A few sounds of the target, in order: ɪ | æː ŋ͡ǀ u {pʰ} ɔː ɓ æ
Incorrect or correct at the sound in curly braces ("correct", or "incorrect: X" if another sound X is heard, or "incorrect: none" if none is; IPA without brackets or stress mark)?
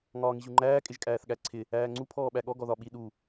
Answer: correct